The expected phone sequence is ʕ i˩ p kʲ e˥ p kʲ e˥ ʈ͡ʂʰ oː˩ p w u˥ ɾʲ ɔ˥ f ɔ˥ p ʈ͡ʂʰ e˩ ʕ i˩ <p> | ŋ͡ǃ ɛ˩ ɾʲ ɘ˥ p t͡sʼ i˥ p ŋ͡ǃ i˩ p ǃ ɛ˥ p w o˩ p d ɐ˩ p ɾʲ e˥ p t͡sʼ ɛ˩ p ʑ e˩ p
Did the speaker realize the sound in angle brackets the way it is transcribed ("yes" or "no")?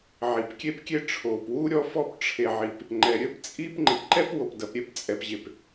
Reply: yes